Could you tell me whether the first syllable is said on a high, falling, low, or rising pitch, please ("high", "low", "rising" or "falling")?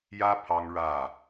high